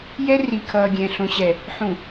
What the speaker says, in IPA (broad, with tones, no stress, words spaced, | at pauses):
jɛ˦ ri˨kʰʌː˨ɡʲɛ̃˨ ɬõ˨ɕɛ˨ | ħũ˨